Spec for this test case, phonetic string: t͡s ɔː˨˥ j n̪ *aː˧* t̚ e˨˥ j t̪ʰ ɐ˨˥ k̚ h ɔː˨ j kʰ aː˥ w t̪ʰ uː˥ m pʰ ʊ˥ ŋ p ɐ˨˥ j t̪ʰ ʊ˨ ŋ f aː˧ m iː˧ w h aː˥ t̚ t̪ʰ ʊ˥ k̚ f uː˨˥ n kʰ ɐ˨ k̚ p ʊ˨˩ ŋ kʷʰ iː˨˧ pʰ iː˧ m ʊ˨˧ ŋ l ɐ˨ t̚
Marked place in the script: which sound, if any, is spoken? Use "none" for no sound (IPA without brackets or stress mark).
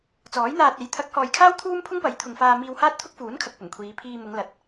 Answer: aː˧